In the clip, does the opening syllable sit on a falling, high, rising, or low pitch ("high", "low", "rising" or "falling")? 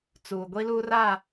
low